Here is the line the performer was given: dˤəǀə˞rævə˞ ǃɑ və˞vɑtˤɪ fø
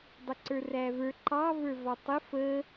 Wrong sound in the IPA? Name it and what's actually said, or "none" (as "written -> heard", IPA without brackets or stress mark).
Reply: ø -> ə